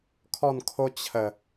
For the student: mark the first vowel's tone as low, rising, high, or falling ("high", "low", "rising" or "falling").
falling